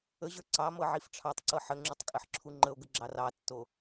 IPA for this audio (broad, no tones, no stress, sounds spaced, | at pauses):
ə ʑ ə˞ ǀ ɑ m ɤ ʕ i f ʈ͡ʂʰ ɑ tˤ ǀ ɤ ħ ə ŋ͡ǁ u tˤ kʼ ɘ ħ ǁʰ u ŋ͡ǃ ə o̯ ɡ ə ɡ͡ǁ ɑ r ɑ tː o